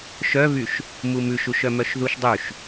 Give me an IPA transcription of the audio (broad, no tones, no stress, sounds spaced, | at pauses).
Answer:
ʃ œ β y ʃ | m u m ʉ ʃ u ʃ œ m œ ʃ ð u ʃ dˤ ʉ ʃ